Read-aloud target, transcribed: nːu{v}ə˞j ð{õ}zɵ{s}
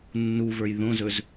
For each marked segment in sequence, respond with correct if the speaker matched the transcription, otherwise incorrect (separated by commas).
correct, correct, incorrect